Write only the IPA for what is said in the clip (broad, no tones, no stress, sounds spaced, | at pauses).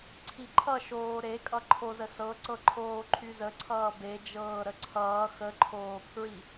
ǀʰ i ǃʰ ʌ ʃ oː ɾ e kʼ ʌ ǃʰ o z ə s ɤ ǀ ɤ ǃʰ oː ǃʰ y z ə ǀʰ ʌː b e d͡ʒ ɤː ɾ ə ǀʰ ʌː x ə ǃʰ oː pʰ ɹ i